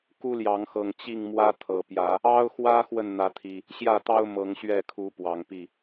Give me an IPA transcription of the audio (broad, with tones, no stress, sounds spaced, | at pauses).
k u˦ l j ɑ˨˦ ŋ x ɤ˨˩ ŋ t͡ɕ i˥˨ ŋ m w ä˦ t̪ʰ ɤ˨˩ p j ä˨˦ | ɑ˦ ʊ̯ x w ä˦ x w ə˨ n n̪ ä˨˦ t̪ʰ i˨˩ | ɕ j ä˥˨ t̪ ɑ˦ ʊ̯ m ɤ˨˦ ŋ ɕ ɥ ɛ˥˨ kʰ u˨˦ p w ɑ˨˩ ŋ p i˥˨